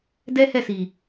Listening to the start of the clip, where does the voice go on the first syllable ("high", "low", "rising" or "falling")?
high